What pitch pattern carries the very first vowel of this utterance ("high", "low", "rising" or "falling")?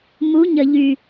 rising